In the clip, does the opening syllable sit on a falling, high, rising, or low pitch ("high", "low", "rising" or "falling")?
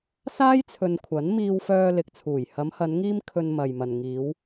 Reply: high